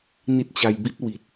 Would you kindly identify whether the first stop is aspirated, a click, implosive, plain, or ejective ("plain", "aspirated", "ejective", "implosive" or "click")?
plain